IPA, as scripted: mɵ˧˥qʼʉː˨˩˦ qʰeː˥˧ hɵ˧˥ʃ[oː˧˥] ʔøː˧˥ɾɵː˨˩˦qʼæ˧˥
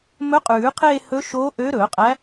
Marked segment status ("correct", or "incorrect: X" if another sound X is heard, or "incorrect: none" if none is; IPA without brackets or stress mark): correct